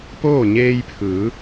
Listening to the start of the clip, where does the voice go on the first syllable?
falling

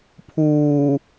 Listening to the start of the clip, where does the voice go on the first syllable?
low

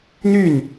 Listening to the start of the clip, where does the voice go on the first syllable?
falling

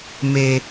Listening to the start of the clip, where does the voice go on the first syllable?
low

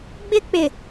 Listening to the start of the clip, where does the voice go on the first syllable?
high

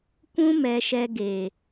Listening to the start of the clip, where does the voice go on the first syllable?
high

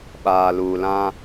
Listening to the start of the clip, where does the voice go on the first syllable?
low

